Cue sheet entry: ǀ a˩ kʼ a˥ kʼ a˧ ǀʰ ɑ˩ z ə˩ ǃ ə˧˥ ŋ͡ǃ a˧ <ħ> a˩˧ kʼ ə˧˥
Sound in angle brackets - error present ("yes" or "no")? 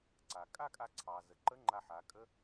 no